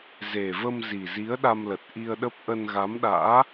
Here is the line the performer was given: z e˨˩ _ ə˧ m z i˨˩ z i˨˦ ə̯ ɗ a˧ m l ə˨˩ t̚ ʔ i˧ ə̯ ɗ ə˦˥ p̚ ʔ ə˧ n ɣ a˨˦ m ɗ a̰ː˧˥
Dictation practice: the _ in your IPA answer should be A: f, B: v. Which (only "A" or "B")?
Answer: B